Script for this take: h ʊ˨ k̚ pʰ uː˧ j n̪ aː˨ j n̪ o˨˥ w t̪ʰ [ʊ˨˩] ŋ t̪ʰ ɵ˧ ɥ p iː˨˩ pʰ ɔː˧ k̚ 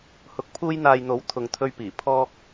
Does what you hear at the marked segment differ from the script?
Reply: yes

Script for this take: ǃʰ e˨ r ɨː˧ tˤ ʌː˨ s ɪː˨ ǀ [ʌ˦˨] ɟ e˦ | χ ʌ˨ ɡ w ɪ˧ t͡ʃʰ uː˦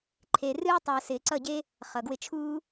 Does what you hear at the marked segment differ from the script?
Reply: no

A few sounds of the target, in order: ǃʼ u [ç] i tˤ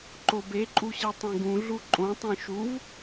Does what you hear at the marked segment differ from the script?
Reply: yes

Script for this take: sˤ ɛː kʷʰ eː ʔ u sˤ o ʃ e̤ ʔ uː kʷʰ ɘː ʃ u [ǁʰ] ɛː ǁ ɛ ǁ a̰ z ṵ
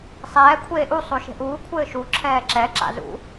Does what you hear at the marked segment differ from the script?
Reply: no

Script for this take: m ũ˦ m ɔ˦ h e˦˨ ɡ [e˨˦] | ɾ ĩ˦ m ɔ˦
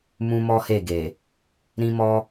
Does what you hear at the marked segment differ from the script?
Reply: yes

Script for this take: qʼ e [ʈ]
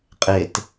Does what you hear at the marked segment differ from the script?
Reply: yes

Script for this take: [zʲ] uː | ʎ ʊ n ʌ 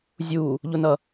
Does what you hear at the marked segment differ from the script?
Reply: no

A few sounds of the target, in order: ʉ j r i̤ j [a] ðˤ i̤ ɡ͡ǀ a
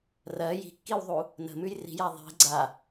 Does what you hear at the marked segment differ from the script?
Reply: no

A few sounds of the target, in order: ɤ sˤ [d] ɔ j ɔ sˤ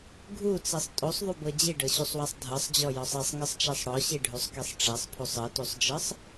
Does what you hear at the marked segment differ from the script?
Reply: yes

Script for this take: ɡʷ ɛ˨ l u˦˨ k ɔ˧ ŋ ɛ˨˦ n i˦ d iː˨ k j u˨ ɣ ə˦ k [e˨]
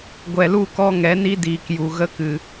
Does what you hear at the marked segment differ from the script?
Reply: yes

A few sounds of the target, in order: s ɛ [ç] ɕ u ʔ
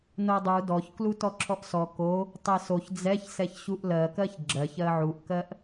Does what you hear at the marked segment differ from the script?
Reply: no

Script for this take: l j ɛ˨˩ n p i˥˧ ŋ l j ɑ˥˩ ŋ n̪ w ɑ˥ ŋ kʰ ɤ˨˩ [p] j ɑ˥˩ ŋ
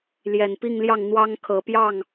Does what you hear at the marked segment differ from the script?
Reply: no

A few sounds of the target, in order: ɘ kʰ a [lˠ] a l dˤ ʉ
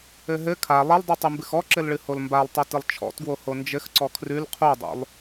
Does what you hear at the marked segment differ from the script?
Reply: no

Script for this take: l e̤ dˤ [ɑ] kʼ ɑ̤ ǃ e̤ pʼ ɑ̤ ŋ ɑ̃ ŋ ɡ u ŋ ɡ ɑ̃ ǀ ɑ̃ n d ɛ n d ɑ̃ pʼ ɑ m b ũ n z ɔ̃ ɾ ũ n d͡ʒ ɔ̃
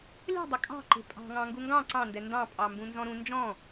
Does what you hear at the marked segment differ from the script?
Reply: yes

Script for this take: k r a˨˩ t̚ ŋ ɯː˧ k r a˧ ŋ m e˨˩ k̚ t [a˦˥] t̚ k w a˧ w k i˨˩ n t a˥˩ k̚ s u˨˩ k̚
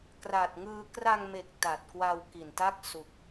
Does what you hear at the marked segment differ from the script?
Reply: yes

